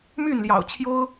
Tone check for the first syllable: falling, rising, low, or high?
falling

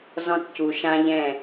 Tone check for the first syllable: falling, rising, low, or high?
high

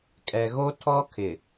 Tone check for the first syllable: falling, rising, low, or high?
low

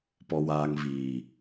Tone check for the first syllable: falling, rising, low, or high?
low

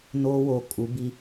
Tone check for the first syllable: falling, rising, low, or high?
high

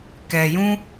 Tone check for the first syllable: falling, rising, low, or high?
low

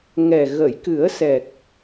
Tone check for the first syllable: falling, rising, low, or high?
low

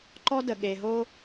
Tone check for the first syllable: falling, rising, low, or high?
high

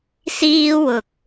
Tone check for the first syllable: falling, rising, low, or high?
high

